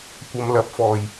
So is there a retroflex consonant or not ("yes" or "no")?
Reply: no